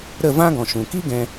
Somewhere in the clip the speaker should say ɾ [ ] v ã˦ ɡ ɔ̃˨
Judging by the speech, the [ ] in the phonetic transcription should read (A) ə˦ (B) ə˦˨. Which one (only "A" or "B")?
B